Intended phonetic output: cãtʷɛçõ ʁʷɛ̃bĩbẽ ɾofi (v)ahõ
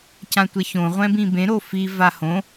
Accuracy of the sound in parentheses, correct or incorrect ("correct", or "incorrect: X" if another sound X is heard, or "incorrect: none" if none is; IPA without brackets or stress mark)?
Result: correct